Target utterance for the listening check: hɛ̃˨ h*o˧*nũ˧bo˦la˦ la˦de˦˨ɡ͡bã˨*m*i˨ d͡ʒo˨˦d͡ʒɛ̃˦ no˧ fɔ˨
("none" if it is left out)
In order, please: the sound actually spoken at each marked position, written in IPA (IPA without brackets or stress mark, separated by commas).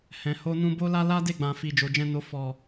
o˧, f